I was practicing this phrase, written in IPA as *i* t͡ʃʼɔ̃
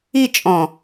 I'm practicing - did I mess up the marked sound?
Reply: no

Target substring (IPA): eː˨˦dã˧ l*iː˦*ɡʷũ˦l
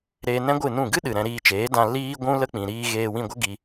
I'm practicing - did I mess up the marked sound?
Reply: no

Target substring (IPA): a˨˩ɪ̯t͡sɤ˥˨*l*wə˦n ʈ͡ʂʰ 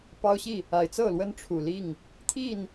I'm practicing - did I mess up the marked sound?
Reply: no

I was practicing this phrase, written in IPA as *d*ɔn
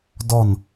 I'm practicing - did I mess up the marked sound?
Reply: no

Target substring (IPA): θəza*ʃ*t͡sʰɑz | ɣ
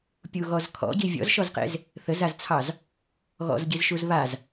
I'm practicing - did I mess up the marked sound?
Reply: yes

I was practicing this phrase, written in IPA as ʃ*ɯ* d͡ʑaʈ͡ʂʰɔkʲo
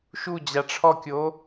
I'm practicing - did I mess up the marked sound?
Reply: yes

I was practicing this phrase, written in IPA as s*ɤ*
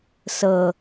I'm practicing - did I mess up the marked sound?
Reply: no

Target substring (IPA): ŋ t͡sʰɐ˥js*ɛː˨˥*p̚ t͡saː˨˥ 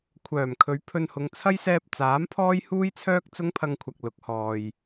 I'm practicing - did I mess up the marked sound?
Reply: yes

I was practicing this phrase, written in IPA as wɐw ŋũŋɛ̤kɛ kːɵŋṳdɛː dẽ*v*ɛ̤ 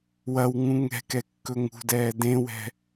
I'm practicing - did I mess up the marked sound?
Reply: yes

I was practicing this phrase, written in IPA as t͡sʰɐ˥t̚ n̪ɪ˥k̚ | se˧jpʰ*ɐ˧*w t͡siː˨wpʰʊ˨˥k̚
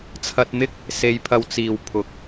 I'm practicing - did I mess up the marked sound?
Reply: no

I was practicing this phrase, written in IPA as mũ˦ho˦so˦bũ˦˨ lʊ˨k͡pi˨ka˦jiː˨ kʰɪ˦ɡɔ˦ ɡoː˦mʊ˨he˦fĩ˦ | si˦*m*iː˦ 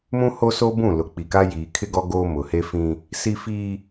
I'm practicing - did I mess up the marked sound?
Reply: yes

